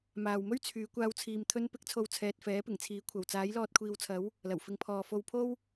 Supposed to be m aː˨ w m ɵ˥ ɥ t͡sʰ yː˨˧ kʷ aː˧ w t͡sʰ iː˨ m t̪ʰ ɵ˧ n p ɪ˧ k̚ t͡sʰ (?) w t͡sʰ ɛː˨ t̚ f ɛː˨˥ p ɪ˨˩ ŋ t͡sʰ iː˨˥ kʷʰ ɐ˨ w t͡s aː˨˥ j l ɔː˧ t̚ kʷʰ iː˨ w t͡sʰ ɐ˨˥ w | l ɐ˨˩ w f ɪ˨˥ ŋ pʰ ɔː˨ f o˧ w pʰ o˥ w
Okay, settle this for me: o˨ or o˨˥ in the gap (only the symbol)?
o˨